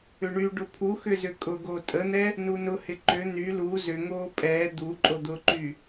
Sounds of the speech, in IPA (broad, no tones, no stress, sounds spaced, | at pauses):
ʏ ɳ y ɖ ʊ pʰ u x ʏ z ʏ kʼ ʊ ɡ o tʼ ə n̪ ɛ | n u n ʊ h ɪ ǃ ʏ n̪ y l u z ʏ ŋ oː pʼ ɛː d̪ u ǃʼ o d̪ ʊ ǃ y